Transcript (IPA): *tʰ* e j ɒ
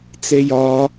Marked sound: incorrect: t͡s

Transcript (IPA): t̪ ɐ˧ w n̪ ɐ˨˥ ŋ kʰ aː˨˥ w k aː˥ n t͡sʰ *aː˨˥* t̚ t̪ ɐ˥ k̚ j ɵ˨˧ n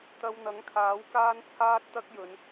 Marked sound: incorrect: aː˥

